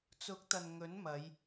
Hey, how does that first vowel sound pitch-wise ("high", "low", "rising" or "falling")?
rising